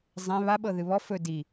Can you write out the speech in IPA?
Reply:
zˤẽ βaɓɤ ðɨβɔ fɵ di

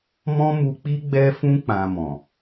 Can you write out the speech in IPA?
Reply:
mɔ̃˦ mu˧k͡pi˦ ɡ͡bɛ˧fũ˧ k͡pã˧mɔ̃˨

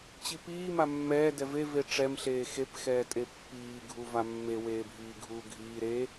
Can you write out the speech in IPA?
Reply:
t͡ɕipiː mamːɛː dɛve veʈ͡ʂɛm ɬeːxep xɛːtʼepːiː ɡʱuvamːe weːbʱiːɡʱuːɡʱiː ɾe

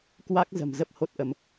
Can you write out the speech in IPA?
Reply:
kwa˦˥k̚ zə̤˨˩m zə˦˥p̚ho˦˥t̚ʔə˧m

